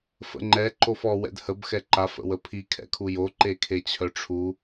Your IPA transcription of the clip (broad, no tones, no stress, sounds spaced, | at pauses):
f ə̰ ŋ͡ǃ ɛ ǃ o f ɔ w ɛ̰ d h ə b x ɛ ǃ a f ə̰ w ə pʰ i kʰ ɛ̰ kʰ u j o ǃ e kʰ e t͡ɕʰ œ ʈ͡ʂʰ u